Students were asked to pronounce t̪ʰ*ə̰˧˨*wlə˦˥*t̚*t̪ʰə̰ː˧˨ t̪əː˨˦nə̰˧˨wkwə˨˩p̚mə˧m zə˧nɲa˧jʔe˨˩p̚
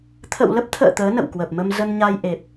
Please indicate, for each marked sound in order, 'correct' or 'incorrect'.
correct, incorrect

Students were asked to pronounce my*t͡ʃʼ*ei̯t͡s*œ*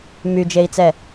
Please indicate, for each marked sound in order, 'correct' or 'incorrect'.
incorrect, incorrect

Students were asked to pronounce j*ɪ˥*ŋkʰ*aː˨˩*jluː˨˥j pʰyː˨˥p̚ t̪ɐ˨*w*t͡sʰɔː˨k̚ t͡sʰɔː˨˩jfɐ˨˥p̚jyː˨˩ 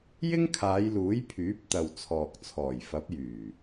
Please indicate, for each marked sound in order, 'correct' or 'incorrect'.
correct, incorrect, correct

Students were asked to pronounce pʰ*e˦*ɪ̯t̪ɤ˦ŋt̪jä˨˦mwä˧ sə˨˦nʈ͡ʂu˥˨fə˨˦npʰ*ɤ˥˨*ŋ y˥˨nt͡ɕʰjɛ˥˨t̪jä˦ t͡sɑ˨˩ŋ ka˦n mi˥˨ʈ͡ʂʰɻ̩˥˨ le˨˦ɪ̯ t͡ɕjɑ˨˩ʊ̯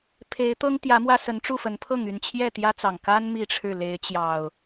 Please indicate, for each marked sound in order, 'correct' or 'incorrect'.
incorrect, correct

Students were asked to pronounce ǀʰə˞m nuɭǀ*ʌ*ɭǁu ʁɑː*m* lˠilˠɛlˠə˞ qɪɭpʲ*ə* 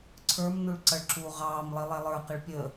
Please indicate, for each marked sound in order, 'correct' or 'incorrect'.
correct, correct, correct

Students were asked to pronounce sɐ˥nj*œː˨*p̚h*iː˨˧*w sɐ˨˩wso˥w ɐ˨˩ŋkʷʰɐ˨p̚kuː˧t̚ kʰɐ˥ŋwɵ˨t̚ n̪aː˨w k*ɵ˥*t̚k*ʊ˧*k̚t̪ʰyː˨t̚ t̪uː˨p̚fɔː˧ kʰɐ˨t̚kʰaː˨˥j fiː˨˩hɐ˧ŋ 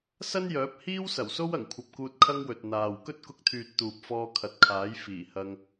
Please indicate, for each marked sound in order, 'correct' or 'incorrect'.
incorrect, incorrect, correct, correct

